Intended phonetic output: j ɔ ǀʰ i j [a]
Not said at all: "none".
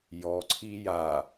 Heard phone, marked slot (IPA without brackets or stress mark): a